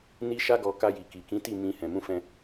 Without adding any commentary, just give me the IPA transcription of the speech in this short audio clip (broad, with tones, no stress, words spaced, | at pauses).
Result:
ni˦ʃa˦ɡɔ˧ ka˧ji˨ki˨kĩ˨˦ ti˦˨mĩ˧ hɛ̃˨mũ˧fɛ̃˧